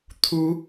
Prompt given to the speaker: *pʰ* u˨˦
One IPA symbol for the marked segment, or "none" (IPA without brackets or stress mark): t̪ʰ